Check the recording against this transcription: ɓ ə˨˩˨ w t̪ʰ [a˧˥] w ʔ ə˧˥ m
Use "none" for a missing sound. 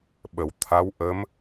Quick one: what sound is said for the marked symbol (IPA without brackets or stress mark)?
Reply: a˧˥